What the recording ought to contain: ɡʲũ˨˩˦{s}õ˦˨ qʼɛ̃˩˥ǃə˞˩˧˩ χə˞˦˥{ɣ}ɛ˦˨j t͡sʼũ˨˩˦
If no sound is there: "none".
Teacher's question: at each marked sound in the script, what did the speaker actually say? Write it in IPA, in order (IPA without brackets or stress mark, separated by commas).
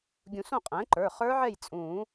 s, ʕ